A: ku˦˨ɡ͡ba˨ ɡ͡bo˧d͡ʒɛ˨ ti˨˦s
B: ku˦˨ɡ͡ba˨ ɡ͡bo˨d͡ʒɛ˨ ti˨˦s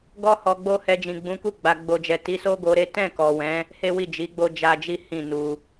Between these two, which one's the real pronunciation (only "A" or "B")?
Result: B